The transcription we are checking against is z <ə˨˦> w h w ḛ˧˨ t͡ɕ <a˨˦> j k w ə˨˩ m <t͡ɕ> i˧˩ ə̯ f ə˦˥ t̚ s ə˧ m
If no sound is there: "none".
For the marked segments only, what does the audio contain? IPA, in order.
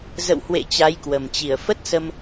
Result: ə̰˧˨, a˨˦, t͡ɕ

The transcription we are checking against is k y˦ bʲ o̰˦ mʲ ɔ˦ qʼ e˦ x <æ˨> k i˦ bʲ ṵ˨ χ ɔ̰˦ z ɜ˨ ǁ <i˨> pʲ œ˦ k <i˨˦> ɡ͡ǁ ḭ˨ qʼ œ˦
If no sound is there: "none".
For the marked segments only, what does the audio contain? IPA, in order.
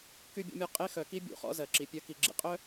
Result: œ˨, i˨, i˨

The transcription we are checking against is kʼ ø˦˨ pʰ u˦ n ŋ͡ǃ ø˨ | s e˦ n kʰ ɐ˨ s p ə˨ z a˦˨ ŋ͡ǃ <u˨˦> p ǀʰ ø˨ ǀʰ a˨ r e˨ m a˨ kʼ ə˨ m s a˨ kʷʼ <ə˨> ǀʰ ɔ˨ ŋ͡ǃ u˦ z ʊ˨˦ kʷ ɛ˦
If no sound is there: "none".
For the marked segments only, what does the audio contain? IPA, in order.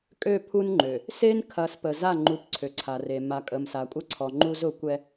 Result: u˨˦, ə˦

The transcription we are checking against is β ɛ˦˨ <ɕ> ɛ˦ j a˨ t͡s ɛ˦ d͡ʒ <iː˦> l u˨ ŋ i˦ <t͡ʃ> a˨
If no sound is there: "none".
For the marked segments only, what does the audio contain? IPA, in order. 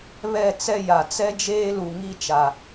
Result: t͡s, eː˦, t͡ʃ

